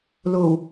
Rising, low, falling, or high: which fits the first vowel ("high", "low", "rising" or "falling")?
low